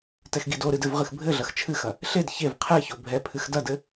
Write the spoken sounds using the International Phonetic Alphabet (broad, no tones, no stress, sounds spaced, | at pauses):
t ɛ x ɡ i d o ɾ ɨ d ɘ v ʁ ɨ x bʱ ɘ ɮ ɐ x t͡ʃʰ ɨ x ɐ | ɬ e d ç e v qʰ ɛ ç o bʱ ɛ pʰ ɨ x d ɐ d ɘ